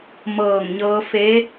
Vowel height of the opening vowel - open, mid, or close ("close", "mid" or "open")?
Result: mid